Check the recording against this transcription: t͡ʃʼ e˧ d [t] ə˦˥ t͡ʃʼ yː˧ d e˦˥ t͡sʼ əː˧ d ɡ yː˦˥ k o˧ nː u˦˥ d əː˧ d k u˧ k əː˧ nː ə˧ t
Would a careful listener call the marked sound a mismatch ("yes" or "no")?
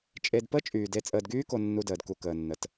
yes